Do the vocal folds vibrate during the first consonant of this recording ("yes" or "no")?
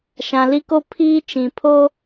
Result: no